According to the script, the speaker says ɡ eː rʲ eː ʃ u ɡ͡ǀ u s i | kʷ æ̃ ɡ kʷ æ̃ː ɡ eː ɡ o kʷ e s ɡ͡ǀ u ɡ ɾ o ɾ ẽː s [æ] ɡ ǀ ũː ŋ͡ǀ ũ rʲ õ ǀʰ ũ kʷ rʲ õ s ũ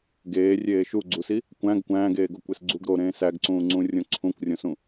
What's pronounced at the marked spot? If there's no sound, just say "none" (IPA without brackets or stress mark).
æ